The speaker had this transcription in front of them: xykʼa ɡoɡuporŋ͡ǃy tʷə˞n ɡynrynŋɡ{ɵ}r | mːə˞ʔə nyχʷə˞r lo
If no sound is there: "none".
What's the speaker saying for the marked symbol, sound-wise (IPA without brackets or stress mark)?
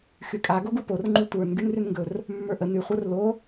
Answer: ɵ